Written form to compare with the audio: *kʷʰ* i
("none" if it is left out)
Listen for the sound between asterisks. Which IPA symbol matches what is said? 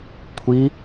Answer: kʷʰ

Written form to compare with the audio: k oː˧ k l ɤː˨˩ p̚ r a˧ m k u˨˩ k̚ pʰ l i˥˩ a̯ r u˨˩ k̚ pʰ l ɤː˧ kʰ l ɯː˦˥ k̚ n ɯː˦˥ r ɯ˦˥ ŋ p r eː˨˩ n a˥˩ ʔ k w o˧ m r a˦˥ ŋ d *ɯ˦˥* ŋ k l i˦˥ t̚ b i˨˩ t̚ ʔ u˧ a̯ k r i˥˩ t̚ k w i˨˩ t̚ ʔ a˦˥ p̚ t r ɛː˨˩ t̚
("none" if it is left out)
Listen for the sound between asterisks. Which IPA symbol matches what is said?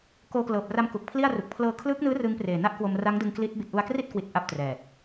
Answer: ɯ˧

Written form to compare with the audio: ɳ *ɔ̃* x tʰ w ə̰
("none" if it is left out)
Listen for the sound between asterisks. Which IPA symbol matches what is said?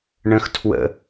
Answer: ə̃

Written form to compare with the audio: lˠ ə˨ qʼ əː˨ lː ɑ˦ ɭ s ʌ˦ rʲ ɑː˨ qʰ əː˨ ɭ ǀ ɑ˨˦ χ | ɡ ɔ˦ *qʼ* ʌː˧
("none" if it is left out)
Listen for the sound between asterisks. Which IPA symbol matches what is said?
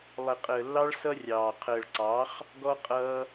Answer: qʼ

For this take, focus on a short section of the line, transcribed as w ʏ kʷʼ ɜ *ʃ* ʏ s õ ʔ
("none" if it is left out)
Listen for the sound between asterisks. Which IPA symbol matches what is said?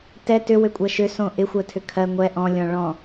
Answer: ʃ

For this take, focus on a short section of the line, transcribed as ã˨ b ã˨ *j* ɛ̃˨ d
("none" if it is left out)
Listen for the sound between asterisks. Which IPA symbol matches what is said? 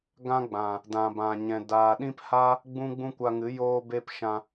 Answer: ɲ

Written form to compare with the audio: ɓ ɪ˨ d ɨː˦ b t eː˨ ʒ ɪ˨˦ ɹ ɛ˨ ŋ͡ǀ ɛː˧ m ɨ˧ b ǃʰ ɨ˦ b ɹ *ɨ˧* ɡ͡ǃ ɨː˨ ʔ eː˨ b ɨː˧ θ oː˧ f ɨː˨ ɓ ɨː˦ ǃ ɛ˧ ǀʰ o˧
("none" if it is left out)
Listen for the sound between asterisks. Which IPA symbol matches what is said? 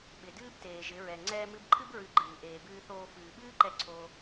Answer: ɨ˧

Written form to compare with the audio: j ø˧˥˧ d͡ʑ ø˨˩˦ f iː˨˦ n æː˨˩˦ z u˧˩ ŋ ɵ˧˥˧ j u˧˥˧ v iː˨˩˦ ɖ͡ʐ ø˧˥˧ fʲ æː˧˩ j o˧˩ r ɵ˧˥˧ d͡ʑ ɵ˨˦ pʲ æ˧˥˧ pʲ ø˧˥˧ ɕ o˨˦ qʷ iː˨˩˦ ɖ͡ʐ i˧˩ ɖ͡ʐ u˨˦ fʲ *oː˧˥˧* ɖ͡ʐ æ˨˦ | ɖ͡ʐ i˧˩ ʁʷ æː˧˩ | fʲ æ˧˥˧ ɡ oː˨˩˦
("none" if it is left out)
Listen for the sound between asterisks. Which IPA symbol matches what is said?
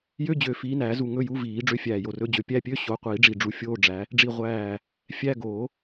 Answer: oː˧˥˧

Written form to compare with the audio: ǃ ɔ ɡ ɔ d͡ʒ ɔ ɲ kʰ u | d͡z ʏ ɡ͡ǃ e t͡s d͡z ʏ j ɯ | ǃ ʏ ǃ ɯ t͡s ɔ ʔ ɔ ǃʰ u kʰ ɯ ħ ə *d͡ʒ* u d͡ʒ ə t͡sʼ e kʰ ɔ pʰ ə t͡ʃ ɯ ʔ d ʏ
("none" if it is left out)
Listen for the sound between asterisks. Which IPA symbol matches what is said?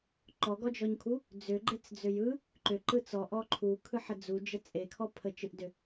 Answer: d͡z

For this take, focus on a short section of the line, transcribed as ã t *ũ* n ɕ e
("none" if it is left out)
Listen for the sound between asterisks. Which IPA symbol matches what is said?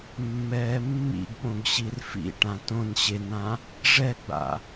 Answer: õ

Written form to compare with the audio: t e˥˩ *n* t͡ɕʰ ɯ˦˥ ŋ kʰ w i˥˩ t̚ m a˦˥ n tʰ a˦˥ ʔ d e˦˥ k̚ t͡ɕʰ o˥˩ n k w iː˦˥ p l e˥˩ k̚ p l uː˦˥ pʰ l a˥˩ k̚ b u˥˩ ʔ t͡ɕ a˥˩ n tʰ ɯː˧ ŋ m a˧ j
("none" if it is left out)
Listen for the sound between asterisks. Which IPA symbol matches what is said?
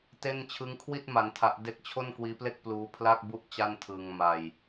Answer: n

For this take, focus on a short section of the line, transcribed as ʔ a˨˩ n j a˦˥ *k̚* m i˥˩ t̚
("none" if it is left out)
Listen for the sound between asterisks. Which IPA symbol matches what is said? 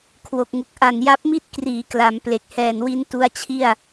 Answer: p̚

